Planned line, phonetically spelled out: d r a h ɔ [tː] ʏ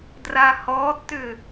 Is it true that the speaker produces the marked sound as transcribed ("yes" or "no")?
yes